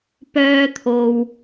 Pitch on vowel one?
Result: high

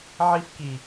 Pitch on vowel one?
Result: high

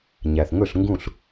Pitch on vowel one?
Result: low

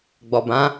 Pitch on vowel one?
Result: low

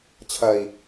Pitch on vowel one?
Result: low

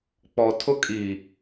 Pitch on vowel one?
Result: low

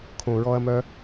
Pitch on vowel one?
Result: low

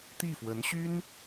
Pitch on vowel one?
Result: falling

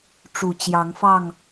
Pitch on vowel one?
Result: low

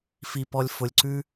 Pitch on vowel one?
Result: low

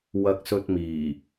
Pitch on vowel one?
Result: high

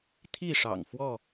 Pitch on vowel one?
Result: falling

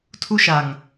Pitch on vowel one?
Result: high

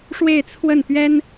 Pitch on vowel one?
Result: falling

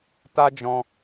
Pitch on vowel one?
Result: high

